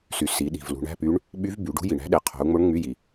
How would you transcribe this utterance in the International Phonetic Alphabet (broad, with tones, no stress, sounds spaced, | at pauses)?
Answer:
s y˩ s i˩˧ ɗ i̤˩ v l ṳ˩˧ ɳ æ̤˧˥˧ p y˧˥ ɳ | ɓ y˧˥ v b y˩˧ ɖ ṳ˧˥ j i˩ ɳ æ̤˧˥ ɗ e˩˧ qʰ o̤˩˧ u̯ ŋ͡m o˧˥ ɳ ŋ͡m y˧˥˧ j i˩